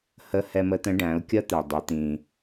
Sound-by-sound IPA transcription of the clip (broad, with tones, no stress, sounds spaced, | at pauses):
h ə˧˥ h ɛ˧ m ə˧˥ t̪ ə̃˧˥ ɖ æ̃˩˧ ʊ̯ kʲ ʌ˥ t̪ ɛ˩ dˤ ɛ˩˧ t̪ ĩ˩